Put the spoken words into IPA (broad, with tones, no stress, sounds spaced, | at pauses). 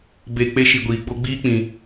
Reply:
b e˧ k͡p e˦ ʃ i˧ ɡʷ iː˧ ɡ͡b o˦ ɡ͡b iː˦ k͡p ĩ˧